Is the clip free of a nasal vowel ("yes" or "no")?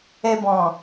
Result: no